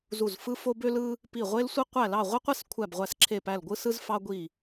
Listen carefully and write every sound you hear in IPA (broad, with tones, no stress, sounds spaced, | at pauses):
z u˦˨ z f ɯ˥ f o˥ b ø˥ l ɯ˥ | p i˦˨ ʁʷ e˥ l sʷ i˥ qʷ æ˦˨ l ɑ˦˨ ʁʷ i˥ qʷ e˥ s kʷʰ æ˦˨ b ʁʷ æ˦˨ s ǁʰ e˦˨ p æ˦˨ l ɡʷ ɯ˥ s ɯ˥ z f ɑ˥ ɡʷ i˦˨